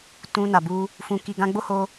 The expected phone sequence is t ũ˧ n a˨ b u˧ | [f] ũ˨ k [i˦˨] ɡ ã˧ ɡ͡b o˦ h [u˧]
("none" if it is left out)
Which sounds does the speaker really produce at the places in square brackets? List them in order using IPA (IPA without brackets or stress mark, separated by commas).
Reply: f, i˨, o˧